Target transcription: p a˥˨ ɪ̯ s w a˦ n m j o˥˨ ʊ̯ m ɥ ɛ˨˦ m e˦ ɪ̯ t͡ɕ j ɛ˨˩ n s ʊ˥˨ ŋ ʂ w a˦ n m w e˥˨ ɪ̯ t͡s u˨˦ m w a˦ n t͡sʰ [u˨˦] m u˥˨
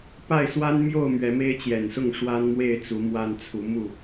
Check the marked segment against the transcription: correct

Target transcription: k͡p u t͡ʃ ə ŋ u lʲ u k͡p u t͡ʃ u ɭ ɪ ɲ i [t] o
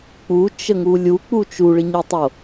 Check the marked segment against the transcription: incorrect: tˤ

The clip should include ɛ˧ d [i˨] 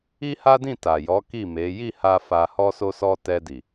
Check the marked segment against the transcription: correct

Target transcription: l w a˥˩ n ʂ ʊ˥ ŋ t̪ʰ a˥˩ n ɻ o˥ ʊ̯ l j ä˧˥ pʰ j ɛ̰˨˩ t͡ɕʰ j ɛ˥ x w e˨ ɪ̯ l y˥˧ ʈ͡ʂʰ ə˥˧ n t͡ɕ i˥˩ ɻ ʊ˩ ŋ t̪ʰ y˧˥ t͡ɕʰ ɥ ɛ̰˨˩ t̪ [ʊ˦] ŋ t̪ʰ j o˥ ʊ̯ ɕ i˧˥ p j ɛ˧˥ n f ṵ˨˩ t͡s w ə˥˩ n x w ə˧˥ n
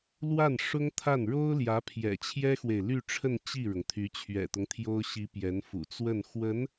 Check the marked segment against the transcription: correct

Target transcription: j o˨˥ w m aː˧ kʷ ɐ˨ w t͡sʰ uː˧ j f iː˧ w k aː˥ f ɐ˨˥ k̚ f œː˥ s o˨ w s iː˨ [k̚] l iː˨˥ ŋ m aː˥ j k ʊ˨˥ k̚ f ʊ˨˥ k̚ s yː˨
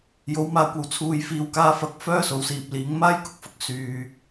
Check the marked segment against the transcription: incorrect: p̚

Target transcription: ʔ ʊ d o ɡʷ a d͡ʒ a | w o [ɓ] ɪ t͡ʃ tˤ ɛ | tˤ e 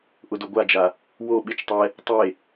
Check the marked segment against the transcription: correct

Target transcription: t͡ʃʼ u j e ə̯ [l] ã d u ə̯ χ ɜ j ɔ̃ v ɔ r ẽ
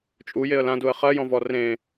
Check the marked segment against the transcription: correct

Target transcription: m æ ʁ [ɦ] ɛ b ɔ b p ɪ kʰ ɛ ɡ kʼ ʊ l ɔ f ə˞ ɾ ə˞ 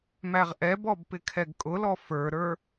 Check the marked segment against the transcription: incorrect: ʔ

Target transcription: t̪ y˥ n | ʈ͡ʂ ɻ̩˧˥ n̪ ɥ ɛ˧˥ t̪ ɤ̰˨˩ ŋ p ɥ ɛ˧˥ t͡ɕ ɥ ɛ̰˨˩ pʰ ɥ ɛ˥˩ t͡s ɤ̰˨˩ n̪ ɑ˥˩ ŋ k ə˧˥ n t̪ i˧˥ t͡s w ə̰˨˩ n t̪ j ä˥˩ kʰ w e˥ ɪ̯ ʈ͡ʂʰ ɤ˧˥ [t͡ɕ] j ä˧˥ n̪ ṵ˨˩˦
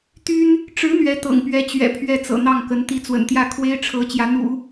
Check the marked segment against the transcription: correct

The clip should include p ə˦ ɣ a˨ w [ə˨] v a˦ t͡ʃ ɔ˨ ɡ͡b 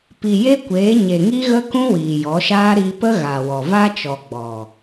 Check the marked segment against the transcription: incorrect: ɔ˨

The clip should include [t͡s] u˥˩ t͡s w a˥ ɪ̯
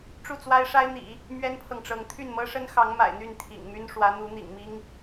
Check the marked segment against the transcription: incorrect: ʈ͡ʂ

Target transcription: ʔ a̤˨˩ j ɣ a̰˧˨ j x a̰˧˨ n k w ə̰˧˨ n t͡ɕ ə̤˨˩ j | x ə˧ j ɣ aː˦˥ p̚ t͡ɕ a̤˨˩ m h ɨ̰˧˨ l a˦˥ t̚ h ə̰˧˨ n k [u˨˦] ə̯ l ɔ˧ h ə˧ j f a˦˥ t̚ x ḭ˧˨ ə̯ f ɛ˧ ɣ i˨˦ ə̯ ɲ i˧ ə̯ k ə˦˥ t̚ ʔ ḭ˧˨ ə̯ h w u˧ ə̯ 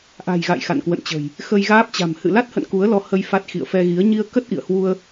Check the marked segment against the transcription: correct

